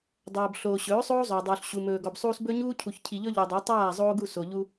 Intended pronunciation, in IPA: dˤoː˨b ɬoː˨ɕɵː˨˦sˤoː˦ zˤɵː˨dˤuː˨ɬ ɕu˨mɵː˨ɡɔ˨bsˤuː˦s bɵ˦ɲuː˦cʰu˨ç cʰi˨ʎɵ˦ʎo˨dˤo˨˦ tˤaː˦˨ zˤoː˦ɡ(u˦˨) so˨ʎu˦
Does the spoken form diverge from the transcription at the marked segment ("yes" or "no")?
no